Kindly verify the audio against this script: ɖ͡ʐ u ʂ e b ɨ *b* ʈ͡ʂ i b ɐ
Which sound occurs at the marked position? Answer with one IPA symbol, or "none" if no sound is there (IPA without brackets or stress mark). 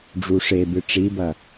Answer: none